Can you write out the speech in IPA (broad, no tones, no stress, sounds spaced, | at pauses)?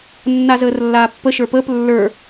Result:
nː a z əː r lː aː pː ə ʃ ə˞ p əː p lː ə˞